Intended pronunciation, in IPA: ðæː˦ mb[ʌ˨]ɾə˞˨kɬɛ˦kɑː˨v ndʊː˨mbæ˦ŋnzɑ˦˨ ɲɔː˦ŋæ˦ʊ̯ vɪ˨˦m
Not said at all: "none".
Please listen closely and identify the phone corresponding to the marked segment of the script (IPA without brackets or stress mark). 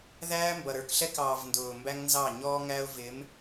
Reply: ʌ˨